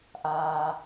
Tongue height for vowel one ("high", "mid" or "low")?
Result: low